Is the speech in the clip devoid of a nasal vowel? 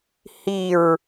yes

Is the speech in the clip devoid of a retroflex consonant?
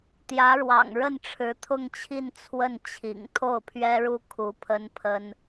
no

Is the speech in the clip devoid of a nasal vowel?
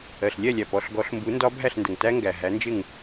yes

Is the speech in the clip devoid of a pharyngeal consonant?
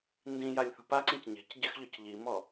yes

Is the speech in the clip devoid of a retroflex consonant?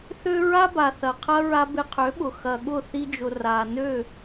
yes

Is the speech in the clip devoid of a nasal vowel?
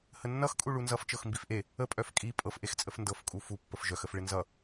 yes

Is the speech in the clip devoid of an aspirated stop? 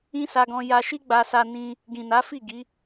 yes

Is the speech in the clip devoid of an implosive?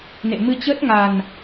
yes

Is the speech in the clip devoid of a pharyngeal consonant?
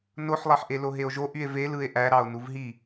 no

